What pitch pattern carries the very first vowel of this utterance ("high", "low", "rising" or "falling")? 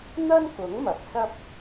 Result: high